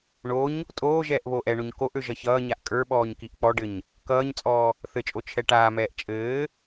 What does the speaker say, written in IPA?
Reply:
ɳ o ɲ | tʼ oː ʒ ɛː ʔ β oː ʔ ɛ ɳ o ɲ k o ʔ ø ʒ ʌ ç ʌː ɲ a ʔ kʼ ə˞ ɓ ɔː ɲ k i ʔ k͡p ɔ ɖ ɘ ɲ | k ʌː ɲ t͡sʼ ɔː | θ ɘ t͡ʃʼ o t͡ʃʰ ɛ ʈ aː m ɛː ʔ t͡ʃʼ ɘː

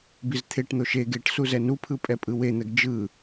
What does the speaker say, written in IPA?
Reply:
b i z t̪ʰ e ʈ n̪ o ʃ e ɡ e ʈ s u z ɛ n u pʰ ɯ pʼ ɛ pʼ ɯ w e n̪ ɛ ɡ d͡ʒ ɯ

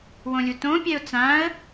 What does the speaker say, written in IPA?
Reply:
w õ lʲ u t õ pʲ ɛ ʊ̯ t͡s ã ə̯

